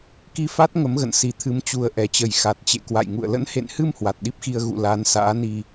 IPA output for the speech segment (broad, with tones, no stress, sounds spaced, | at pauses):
k i˧ f a˦˥ t̚ ŋ ə˨˦ m ɣ ə̰˧˨ n s i˨˩ t̪ʰ ɨ˨˦ m t͡ɕ u˨˩ ə̯ ʔ ɛ˨˩ t͡ɕ ə˨˩ j x a˨˩ t̚ t͡ɕ ḛ˧˨ k w a̰˧˨ j ŋ ṵ˧˨ ə̯ l ə̰˧˥ n h ḛ˧˨ n h ɨ˧ m h w a˨˩ t̚ ɗ i˦˥ p̚ x i˧ ə̯ ɣ ṵ˧˨ l aː˨˦ n s a̰ː˧˥ n i˧